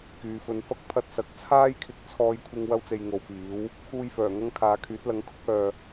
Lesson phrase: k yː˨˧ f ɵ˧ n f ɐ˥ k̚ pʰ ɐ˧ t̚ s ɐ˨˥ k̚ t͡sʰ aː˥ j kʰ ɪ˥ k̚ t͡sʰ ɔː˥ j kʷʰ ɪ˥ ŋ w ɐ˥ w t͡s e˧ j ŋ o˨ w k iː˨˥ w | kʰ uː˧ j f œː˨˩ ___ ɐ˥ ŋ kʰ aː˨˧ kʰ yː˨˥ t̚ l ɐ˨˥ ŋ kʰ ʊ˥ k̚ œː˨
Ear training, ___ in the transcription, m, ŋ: ŋ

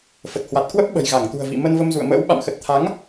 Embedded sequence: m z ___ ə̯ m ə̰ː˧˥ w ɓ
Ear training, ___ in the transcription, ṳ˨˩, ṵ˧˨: ṵ˧˨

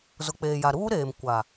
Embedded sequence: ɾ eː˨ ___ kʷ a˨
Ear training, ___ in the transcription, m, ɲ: m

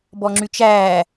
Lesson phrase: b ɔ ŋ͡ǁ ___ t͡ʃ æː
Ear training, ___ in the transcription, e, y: y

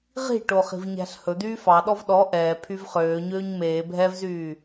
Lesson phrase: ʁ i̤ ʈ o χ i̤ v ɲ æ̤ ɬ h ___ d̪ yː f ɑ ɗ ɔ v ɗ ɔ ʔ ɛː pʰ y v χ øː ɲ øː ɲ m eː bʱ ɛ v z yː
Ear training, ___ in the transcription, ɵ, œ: ɵ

